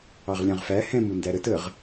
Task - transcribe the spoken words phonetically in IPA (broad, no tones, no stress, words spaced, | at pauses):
ɑʁlʲɑ̃ʁfæ hɛ̃m undæɾət əʁ